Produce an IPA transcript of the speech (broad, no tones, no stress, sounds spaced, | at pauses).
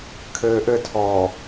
kʰ ɘː ʔ ɘ tʰ ɔː